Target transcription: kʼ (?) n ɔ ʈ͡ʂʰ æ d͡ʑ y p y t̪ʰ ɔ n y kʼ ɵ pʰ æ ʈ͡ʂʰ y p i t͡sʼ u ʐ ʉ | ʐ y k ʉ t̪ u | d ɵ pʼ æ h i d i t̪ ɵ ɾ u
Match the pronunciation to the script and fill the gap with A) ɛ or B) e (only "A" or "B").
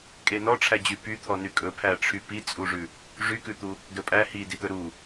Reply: B